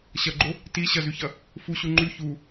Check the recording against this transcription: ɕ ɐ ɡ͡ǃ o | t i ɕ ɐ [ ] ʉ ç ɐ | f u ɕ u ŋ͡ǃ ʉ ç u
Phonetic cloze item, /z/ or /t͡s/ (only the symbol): z